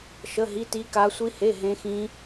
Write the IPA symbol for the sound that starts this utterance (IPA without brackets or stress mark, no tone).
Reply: ʃ